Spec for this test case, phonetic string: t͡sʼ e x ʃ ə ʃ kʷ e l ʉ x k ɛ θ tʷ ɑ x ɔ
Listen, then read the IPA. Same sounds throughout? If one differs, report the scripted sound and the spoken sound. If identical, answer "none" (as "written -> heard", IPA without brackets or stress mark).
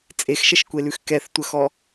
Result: ɑ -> ə